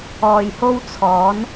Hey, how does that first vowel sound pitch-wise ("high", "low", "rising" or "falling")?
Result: low